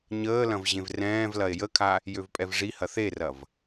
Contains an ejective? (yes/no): yes